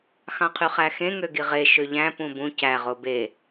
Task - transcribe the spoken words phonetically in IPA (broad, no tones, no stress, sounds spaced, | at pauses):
x ɑ̃ qʰ y χ æ x ẽ ŋ ø ɡ i ʁ e ʃ ø ʎ æ̃ p ũ b ũ c æ ʁ o b e